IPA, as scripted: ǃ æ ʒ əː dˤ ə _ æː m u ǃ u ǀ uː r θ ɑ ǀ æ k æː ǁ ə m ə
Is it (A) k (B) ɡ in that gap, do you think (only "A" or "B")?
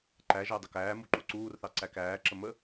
A